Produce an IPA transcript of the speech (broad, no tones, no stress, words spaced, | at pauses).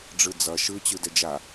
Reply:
ɖ͡ʐɯd͡zʌ ʃɯ t͡ɕɯdɛd͡ʒa